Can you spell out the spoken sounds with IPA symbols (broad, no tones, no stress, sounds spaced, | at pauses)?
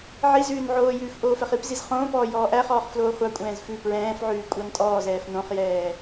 ʕ i z ʉː n ʕ oː j ʉː f ʔ oː f ɛ χ i p z i z χ õː p ɔː j ɔː ʔ æ χ ɔː χ f l oː χʷ ɑ kʷʼ ɛ̃ː z f ʉ p ɹ ɛ̃ː f ʕ ʉː kʷʼ ɑ n tʼ ɔː z ɛː f n õ χ j ɛː